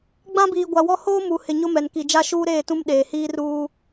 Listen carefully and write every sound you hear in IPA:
ɡ͡b ã˦ b iː˨ ɡʷ a˨ w ɔ˦ h oː˦ m u˨ h ɪ˨ ɲ ʊ˦ m ɛ˨ n k i˨ d͡ʒ a˦ ʃ uː˦ ɾ eː˦˨ t ũ˦ m ɗ eː˨ h iː˦ r uː˦

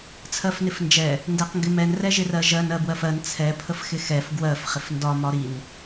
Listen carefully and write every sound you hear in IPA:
t͡sʰ ɜ f n ɪ f n d͡ʒ ɛ | n d ɛ q ŋ ɡ ɪ m ɛ n r ɛ ʒ ɪ r ɜ ʒ ɜ n ɜ b w ɜ f ɜ n t͡sʰ ɛ pʰ ə f x ɪ x ɛ f ɡ w ɜ f χ ɪ f n d ɒ m ɒ ɾ i n

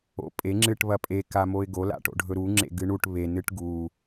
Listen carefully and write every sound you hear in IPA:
o̰ pʼ e ŋ͡ǁ ɨ ʈ β ɐ pʼ e k a m o ɪ̯ ɡ o l a̰ ʈ o̰ ɖʱ ɵ ɾ u ŋ͡ǁ ḛ ɡ ɨ ɳ u ʈ β e n ɨ ʈ ɡ u

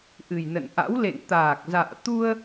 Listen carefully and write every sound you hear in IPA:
ʔ ɨ˨˩ j n ə̰˧˨ n ʔ a̰˧˥ w l ḛ˧˨ ŋ t̪ aː˨˩ k̚ z a̰ː˧˨ t̪ u˧ ə̯

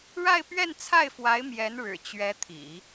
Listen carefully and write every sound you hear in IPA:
ɻ a˥˧ ɪ̯ p ɥ ɛ˥˧ n t͡sʰ a˥˩ ɪ̯ f w a˧˥ ɪ̯ m j ɛ˧˥ n ɻ ɻ̩˨˩ t͡ɕ ɥ ɛ˧˥ t̪ʰ ḭ˨˩˦

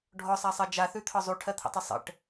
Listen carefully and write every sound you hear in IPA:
ɖʱ ɔ sˤ a sˤ ɜ d͡ʒ a θ ʉ t̪ʰ ɒ zˤ u ʈʰ ɜ t̪ʰ ə̰ tˤ ə sˤ ə̰ ʈ

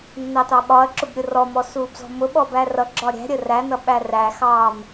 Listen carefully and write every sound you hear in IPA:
nː ɑ t ɑ ɓ ɒ ɐ̯ ǁ ʊ b ɾʲ ʊ r ɔ m ɔ s uː b z ɔ̤ m ʊ ɓ ɔ b æ r ʌ ɡ͡ǁ ɒ ɾʲ æ̤ ɾʲ ə r æ n ʌ ɓ æ r æ x ɑː m

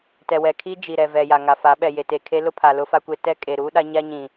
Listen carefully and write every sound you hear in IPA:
t ɛ˨ w ɛ˨ kʰ i˦ d͡ʒ i˨ ɾ ɛ˨ v ɛ˨ j a˨ ŋ a˨ f a˨˦ ɓ ɛ˨ j e˨ t e˨ kʰ e˦ l ʊ˦ pʰ a˨ l ʊ˦ f a˦ kʷ e˦ t ɛ˦ kʼ e˨ ɾ uː˦ ɗ a˦ ɲ a˦ ɲ ĩ˨

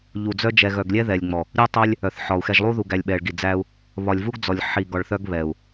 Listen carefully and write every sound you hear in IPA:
ʎ u˨ d͡z œ˦ d͡ʒ ɛ˨ ɣ œ˨ ɡ lʲ ɛ˦ ð ɛ˨ lʲ ŋ͡m ɔ˨ | ɾʲ u˦ tˤ œ˦ lʲ | œ˨ θ ħ ɒ˨ u̯ x ɛ˨ ʒ lˠ u˦ ð u˨ ɡ æ˨ lʲ ɓ ɛ˨ ɭ ɡ i˨ d͡z æ˦ u̯ | β ɒ˨ lʲ v u˦ ɡ d͡z ɔ˨ lʲ ħ i˨ ɡ ɒ˨ ɭ θ œ˦ ɡ β ɛ˨ u̯

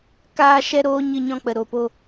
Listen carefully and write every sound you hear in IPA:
k aː˧ ʃ ɛ˧ ɾ oː˧ ɲ ɨ˧ ɲ ɔ̃˧ k͡p ə˨ ɾ o˨ p o˧

